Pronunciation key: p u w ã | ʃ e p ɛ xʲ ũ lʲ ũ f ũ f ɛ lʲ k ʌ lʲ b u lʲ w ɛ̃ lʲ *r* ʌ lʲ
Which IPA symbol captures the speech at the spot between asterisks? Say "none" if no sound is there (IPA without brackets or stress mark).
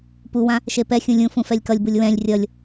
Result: rʲ